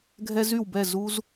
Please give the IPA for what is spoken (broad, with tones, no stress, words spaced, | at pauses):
ɡʱɛ˦zy˦˨wbɛ˦˨ zu˧z